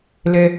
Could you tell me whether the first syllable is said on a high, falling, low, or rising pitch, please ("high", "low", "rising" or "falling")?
low